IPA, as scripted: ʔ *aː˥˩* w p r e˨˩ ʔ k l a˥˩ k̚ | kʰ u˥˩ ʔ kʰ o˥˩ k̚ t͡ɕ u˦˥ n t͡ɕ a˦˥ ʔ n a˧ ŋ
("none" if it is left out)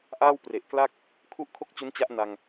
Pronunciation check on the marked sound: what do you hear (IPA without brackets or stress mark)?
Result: aː˥˩